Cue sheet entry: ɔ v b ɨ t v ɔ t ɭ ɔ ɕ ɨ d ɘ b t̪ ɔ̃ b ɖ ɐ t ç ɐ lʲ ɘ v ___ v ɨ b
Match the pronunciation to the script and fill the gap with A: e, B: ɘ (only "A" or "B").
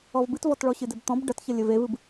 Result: A